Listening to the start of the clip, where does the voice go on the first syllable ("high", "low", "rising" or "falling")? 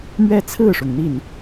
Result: falling